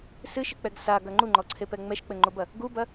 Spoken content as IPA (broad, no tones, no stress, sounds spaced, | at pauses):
s ɨ ʃ ɨ k͡p ɛ ɡ s a ɡ ɐ ŋ͡ǃ u ŋ͡ǃ ɔ ǀʰ e p ɛ ŋ͡m ɛ ʃ k͡p ɘ ŋ͡ǃ o b ɐ | ɡ u b ɐ